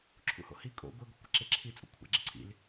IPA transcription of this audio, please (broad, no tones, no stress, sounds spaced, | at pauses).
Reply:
ǁʰ ṵ h o̰ h i kʼ o̰ ɡʷ ɪ ɡʷ i kʷ i ǁ e ǁʰ i t͡sʼ o̰ kʷʰ a̰ ɡ͡ǁ ɪ ǀʰ ḭ l